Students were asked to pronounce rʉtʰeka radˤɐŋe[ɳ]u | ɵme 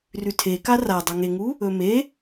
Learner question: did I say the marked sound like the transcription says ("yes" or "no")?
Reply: no